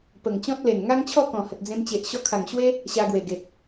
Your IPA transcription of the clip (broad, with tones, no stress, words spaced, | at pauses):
pə˨˩ŋt͡ɕɔ̃˦t̚le˨˩n ŋa˦ŋt͡ɕʰɔ˥˧ kɔ̃˨˩hə˨t̚d͡zẽ˧mt͡ɕe˨ʔ ɕɔ˧kʰa˨˩ŋɕwe˦ | ɕa˧ɡwe˨˩ ɡe˨t̚